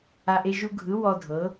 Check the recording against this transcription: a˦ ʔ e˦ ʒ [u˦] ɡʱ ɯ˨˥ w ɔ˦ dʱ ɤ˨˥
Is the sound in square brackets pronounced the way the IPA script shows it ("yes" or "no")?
yes